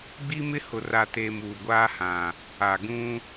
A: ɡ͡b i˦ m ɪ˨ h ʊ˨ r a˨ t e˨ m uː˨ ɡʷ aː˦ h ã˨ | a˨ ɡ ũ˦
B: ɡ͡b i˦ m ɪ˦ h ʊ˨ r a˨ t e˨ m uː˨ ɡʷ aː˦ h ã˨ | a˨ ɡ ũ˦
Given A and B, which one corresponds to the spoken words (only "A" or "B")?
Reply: B